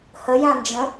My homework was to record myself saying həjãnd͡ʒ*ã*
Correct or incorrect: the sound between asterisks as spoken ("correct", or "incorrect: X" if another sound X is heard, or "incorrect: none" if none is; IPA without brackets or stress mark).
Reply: incorrect: ə̃